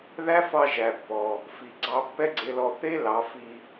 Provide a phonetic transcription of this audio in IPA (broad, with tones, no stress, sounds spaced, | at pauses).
ð æ˦ f ɑ˧ ʒ æ˨ pː ɔ˨ | f i˨ ɡ͡ǀ ɑ˧ pː ɛ˦ ɡ͡ǀ e˧ l ɔ˧ θ e˦ l ɑ˨˦ f i˧